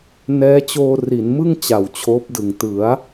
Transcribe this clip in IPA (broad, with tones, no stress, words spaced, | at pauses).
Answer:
nɛː˦˥t͡ɕoː˧ri˩˦nmɯ˥˩ŋ t͡ɕa˨˩wt͡ɕʰoː˦˥p̚dɯ˨˩ŋ tɯ˩˦a̯